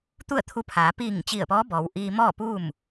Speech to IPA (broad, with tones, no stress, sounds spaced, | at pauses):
t̪ u˥˨ ə̯ t̪ʰ u˧ pʰ aː˩˧ p iː˧˩ ŋ t͡ɕ i˧˩ ə̯ p ɔː˧˥ b ɔː˩˧ w ʔ iː˧ m ɔː˥˨ p uː˥˨ m